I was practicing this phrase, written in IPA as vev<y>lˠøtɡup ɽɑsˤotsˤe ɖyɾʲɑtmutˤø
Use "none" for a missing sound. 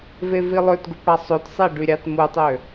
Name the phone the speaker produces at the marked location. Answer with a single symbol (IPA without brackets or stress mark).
i